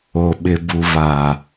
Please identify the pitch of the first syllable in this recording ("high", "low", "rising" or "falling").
low